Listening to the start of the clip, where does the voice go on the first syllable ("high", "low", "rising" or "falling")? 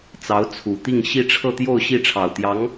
rising